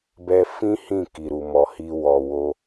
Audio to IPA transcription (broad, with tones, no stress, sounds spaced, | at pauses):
b ɛ˧ f ĩ˦ h ĩ˦˨ k i˨ ɾ u˨ m ɔ˨ h i˧ w ɔ˨ w o˧